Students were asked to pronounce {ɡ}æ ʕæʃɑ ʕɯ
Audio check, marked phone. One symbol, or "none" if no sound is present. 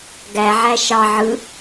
ɡ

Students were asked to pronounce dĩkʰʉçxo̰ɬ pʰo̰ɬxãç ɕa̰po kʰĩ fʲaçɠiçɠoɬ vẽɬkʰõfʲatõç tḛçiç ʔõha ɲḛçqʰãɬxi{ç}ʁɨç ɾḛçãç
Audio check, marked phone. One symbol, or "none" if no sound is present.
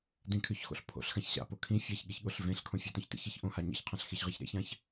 ç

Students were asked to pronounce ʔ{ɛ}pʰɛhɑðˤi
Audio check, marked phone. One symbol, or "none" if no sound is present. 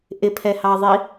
ɪ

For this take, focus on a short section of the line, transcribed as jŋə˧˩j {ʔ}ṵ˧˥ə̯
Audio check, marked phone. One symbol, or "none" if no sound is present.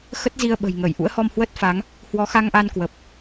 ʔ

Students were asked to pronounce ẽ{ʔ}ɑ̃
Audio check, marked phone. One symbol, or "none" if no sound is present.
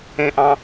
ʔ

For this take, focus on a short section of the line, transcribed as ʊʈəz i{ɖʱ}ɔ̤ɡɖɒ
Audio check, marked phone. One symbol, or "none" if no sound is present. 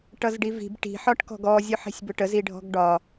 ɖʱ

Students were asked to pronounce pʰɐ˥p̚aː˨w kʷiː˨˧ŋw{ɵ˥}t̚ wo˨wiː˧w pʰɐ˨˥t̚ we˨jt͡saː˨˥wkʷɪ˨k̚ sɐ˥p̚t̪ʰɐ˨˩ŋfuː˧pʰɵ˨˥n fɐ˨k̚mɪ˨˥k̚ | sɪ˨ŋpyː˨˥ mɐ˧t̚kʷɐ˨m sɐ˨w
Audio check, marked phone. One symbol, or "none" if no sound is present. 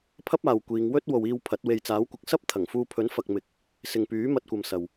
ɵ˥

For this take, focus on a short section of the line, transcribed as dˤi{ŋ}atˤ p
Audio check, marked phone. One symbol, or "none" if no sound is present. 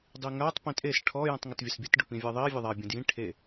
ŋ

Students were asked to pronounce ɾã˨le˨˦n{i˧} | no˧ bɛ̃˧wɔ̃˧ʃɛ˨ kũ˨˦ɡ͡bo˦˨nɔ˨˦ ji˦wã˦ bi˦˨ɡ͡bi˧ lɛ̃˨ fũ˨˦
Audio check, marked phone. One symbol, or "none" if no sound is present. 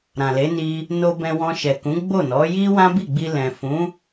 i˧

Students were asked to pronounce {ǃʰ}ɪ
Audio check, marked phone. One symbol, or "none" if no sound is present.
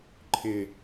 ǃʰ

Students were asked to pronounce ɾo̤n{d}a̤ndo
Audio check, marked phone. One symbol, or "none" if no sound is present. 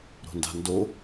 d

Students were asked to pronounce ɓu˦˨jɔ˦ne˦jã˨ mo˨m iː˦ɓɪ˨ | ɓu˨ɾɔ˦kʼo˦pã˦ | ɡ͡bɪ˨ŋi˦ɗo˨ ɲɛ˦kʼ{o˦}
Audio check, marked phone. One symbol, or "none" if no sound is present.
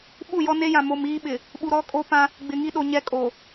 o˨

